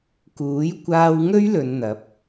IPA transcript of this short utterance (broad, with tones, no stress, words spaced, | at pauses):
kuː˨˥jkʷaː˧wŋɵ˥ɥ lɵ˧nn̪ɐ˨˥p̚